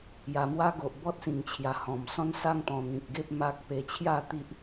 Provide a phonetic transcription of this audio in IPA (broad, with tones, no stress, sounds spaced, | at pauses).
j a˨˩ m w a˦ ɡ o˨ ʔ b ɔ˦ t̚ s ĩ˨˩ ŋ t͡ɕʰ j a˨˩ h ɔ̃˨˩ m s ɔ̃˦ n s a˥˧ ŋ t̪ ɔ̃˨˩ n̪ ĩ˨ k̚ ɡ e˦ p̚ m a˦ k̚ p e˧ t͡ɕʰ j a˥˧ t̪ i˦ ʔ